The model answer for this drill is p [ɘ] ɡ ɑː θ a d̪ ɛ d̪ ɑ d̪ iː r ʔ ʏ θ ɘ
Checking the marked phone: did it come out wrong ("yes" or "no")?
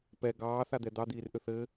yes